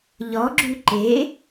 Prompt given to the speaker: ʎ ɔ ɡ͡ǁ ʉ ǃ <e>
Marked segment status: correct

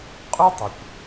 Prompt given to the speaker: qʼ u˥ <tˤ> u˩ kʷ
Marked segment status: correct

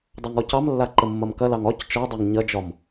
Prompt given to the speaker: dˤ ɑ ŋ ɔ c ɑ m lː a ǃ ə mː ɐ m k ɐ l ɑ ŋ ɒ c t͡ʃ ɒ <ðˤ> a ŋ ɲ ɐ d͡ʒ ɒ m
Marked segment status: incorrect: dˤ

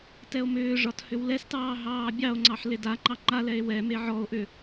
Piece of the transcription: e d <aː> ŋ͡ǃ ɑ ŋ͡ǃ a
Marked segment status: incorrect: a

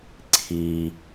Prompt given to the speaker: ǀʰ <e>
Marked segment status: incorrect: i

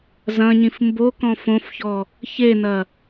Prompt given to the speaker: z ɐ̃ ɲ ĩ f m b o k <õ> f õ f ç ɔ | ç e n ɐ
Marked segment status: incorrect: ɔ̃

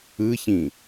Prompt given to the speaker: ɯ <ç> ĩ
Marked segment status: correct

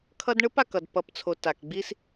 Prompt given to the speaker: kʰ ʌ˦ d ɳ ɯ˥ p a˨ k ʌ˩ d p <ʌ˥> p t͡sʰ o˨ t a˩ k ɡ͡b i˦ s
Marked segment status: incorrect: ʌ˨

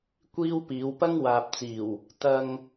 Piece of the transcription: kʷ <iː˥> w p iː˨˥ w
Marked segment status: correct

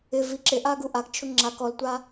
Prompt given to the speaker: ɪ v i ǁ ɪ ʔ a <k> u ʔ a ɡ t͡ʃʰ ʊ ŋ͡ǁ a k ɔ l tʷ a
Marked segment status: incorrect: ɡ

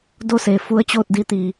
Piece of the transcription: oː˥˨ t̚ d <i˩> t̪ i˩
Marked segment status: incorrect: i˧˥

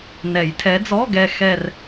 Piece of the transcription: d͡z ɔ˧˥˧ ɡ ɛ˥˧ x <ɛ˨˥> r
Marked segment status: incorrect: ɛ˥˧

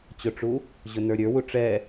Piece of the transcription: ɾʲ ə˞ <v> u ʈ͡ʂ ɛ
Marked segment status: incorrect: w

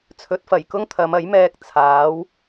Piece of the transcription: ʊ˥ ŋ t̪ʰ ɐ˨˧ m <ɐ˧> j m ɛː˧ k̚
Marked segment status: incorrect: ɐ˨˥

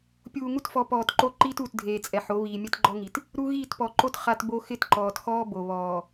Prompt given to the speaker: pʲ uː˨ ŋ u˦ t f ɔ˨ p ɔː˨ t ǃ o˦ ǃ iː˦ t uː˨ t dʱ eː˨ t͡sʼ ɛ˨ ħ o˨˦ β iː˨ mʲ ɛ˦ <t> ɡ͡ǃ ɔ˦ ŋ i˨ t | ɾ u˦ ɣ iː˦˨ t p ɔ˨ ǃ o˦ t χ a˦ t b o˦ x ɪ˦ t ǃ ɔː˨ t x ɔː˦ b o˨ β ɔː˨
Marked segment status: correct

